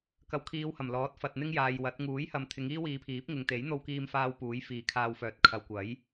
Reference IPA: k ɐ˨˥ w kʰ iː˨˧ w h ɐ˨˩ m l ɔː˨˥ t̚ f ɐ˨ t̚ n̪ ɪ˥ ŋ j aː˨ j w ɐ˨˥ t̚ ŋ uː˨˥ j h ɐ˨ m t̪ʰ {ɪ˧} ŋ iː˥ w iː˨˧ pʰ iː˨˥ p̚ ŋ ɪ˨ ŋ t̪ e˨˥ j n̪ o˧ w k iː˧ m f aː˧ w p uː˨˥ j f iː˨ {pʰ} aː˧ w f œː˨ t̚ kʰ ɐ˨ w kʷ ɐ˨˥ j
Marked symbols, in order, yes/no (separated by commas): no, no